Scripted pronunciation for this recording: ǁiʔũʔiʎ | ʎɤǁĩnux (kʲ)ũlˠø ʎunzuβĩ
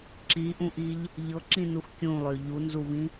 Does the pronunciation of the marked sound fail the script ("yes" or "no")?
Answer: no